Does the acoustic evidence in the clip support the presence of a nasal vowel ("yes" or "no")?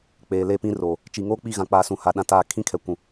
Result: yes